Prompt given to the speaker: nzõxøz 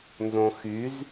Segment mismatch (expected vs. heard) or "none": ø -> y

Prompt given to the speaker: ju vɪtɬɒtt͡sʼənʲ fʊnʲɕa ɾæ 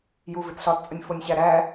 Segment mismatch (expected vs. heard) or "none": a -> æ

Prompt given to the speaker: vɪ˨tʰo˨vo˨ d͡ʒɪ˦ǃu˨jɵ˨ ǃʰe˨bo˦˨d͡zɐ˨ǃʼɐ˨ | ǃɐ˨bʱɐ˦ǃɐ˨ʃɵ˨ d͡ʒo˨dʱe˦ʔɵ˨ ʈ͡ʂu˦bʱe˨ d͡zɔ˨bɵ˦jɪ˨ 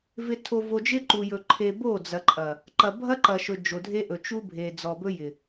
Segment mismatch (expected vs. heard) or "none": ʈ͡ʂ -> t͡ʃ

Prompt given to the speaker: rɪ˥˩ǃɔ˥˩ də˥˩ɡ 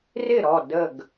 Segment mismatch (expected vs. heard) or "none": ǃ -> ɾ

